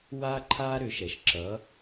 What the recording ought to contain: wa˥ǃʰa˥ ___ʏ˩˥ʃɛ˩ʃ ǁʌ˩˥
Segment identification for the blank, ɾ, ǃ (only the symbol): ɾ